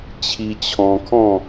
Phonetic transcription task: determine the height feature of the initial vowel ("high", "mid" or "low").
high